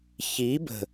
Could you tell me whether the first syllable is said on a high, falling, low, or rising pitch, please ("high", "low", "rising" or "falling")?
rising